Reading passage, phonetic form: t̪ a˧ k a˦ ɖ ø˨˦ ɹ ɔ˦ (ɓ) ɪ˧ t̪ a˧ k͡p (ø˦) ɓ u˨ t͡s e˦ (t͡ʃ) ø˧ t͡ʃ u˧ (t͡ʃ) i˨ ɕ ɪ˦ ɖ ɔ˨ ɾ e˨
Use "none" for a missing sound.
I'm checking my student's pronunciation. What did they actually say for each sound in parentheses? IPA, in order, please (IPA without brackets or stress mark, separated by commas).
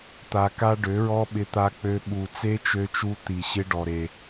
ɓ, ø˧, t͡ʃ, t̪